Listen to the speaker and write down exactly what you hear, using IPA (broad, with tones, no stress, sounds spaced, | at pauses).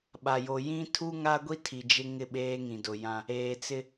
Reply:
ɓ a˨ j o˨ j ĩ˦ tʰ u˦ ŋ a˦ ɡʷ i˦ tʰ i˨ d͡ʒ ɪ˦ ŋ ɪ˦˨ ɓ eː˦ ŋ ĩ˨ d ʊ˨ j ã˦ | eː˨ t͡s ɪ˦